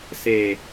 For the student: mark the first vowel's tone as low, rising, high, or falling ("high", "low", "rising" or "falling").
low